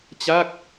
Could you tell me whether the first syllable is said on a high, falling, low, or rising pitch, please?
falling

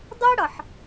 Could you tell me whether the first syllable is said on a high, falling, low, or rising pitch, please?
high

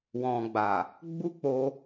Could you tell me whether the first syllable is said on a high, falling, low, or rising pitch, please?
low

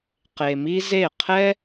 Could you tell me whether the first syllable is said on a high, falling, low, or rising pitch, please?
low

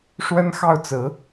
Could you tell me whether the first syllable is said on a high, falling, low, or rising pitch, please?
high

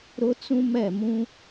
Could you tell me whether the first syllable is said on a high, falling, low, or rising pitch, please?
high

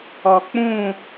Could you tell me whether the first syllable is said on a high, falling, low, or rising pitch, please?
low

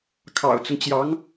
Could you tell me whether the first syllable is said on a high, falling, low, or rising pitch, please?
low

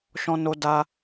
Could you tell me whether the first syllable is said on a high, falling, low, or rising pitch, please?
high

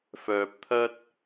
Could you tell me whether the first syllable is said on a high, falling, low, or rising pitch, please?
low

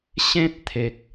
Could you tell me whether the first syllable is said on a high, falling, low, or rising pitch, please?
high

